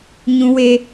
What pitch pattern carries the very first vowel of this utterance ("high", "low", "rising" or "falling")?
high